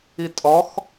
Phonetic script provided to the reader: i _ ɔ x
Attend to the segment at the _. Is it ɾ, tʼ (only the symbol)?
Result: tʼ